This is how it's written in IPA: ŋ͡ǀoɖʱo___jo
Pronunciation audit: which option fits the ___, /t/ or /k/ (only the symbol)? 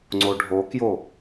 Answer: k